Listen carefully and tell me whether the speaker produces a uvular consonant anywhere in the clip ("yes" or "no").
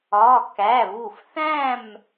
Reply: no